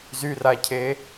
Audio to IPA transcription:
z y r a cʰ e

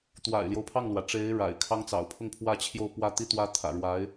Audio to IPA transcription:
t̪ w a̰˨˩ ɪ̯ l j o˦ ʊ̯ pʰ ɑ˥˩ ŋ l w ä˩ ʈ͡ʂ e˧˥ ɪ̯ ɻ a̰˨˩ ɪ̯ kʰ ɑ˥ ŋ t͡s ɑ̰˨˩ ʊ̯ pʰ ʊ˥˧ ŋ pʰ w ä˥˧ t͡ɕʰ j o˥˧ ʊ̯ p w ä˥˩ t̪ i˥ t̪ w ä˥ t̪ʰ ä̰˨˩ ɻ w a˧˥ ɪ̯

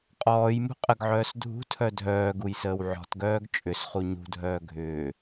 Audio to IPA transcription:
qʼ ɔː j m ṳ qʼ ə ɡ ʕ œː s dʱ ṳ tʰ œ dʱ œː ɡ u j s əː w ʕ ɔ̤ t ɡ œː ɡ t͡ʃʼ ʏ s χ u ɲ ṳ dʱ œː ɡʱ ʏː

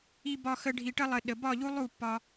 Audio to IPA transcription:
i˧ b ɒ˧ x ə˧ ɖʱ i˧ ʈ ə˥ lˠ ə˧ ɗ ə˧ b ɒ˥˧ ʎ u˥ lˠ u˥˧ pː ɒ˥

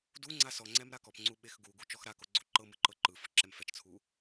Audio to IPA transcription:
d u ŋ͡ǀ a s ɔ ŋ͡ǀ ɛ m ɾ a k ɔ p ŋ͡ǀ u ɓ e x ɡ u ɡ u t͡ʃ ɔ x ɾ a k o ɡ͡ǀ o ǃ ɤ m ɯ ǃ ɤ ǃ ɯ f ɯ ǁ ɛ m f ɛ t͡ʃ t͡sʰ u

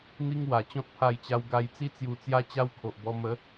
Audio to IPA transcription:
n̪ i˦ ŋ w a˨˩ t͡ɕ ɔ̃˦ t̚ pʰ a˧ j t͡ɕ a˧ w ɡ a˧ j t͡s i˦ t͡s j u˧ t͡s j a˦ t͡ɕ a˦ w kʰ o˨ ʔ b ɔ˧ m ə˨˦

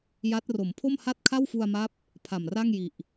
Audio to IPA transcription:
j a˦˥ t̚ r o˩˦ m pʰ o˥˩ m h a˥˩ t̚ kʰ a˥˩ w f u˧ a̯ m a˦˥ p̚ | pʰ a˨˩ m r a˥˩ ŋ j i˨˩ ʔ

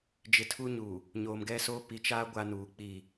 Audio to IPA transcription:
d͡ʒ ɪ˨ tʰ u˦ ɲ uː˨ | ɲ oː˨ m ɡ ɛ˦ s oː˦ p i˨ t͡ʃ aː˦ ɡʷ a˦ n uː˨˦ k͡p i˦˨

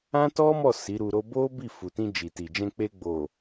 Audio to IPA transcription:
ã˦ t ɔ˦ m ɔ˦˨ s i˨˦ ɾ u˧ ɾ o˦ b o˦ b i˦˨ f u˨ t ĩ˧ d͡ʒ i˨ t i˨ d͡ʒ ɛ̃˧ k͡p e˧ ɡ͡b o˨

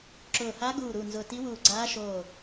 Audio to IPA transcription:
ǁ ʊː˧˩ h a˧˥ ɡ uː˧˩ ɾ u˧˩ n z ʊ˧˩ t i˧˥ w uː˧˩ ɡ͡ǀ aː˧˥ ʃ oː˧˩

